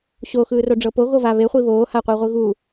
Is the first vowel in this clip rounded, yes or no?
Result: yes